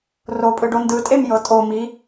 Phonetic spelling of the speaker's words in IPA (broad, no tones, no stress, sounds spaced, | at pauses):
r o pʼ ɯ ɖ o n d ɯ tʼ e m j ɤ tʼ o m i